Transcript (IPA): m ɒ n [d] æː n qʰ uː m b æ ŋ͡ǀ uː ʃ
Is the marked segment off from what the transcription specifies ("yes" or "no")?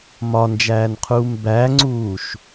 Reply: yes